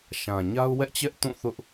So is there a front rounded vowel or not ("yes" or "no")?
no